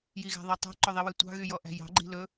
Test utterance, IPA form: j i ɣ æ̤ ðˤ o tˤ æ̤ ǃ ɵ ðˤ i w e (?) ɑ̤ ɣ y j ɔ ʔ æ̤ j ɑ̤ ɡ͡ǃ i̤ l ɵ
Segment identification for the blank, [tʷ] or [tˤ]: tʷ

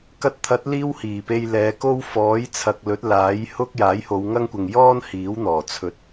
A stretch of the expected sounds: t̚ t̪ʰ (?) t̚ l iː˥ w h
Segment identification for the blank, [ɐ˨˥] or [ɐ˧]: ɐ˨˥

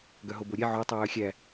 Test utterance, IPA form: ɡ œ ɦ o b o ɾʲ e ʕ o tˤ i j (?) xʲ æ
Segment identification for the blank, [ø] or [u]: ø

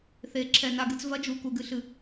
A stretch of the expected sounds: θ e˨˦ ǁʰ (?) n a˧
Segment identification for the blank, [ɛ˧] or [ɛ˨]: ɛ˨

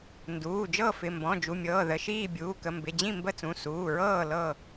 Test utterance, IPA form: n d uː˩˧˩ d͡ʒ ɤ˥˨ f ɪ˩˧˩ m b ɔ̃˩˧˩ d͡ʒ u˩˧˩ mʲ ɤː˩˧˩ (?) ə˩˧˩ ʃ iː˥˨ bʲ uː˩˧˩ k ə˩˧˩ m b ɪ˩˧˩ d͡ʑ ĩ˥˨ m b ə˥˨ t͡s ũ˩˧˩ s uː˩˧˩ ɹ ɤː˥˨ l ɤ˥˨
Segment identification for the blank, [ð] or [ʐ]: ð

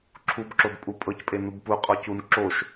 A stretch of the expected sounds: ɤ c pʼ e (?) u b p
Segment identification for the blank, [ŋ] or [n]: n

